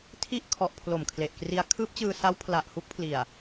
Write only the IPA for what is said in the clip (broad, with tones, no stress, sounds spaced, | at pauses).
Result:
tʰ i˦˥ ʔ kʰ ɔ˨˩ ʔ pʰ l o˨˩ m kʰ l e˨˩ ʔ k r i˦˥ a̯ kʰ ɯː˦˥ p̚ t͡ɕ ɯː˧ s a˦˥ w pʰ l a˨˩ ʔ h u˦˥ k̚ pʰ l i˨˩ a̯